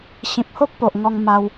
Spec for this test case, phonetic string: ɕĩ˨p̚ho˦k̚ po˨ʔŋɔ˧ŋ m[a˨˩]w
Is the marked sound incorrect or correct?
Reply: incorrect: a˧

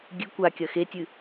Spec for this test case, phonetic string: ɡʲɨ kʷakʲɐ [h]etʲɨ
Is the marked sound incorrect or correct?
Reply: incorrect: x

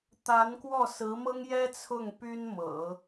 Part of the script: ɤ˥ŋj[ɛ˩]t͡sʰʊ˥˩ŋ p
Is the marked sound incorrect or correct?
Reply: incorrect: ɛ˥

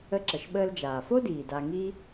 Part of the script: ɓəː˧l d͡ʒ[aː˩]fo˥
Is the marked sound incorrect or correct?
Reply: correct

